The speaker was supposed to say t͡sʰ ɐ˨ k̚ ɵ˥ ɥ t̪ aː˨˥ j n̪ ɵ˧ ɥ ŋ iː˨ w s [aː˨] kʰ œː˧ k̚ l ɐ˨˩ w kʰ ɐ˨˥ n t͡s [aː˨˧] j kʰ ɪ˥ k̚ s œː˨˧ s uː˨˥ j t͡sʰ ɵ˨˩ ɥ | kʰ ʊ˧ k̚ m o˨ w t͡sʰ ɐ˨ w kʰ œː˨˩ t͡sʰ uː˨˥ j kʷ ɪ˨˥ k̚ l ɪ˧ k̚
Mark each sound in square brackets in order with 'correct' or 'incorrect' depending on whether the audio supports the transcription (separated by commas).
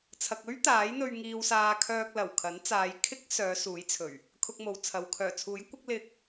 correct, correct